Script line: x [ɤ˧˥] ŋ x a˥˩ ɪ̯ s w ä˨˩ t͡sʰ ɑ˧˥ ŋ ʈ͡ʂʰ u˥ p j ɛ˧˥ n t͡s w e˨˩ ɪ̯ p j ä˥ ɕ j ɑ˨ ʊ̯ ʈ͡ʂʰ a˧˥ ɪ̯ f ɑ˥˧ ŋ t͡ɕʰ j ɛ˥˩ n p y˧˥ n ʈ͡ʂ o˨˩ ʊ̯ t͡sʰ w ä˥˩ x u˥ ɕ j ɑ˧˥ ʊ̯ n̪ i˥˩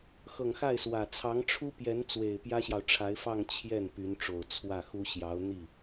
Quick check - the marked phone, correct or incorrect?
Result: incorrect